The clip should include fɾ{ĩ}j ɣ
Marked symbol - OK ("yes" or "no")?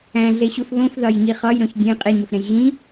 no